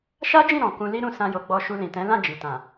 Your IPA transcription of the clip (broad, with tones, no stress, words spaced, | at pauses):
ʃa˦d͡ʒĩ˦˨ ɾɔ̃˨ kũ˧li˦ɾũ˦˨ sã˧jo˨ɡ͡bɔ˧ ʃu˧lĩ˨tɛ̃˨˦ lã˦˨ d͡ʒi˨tã˨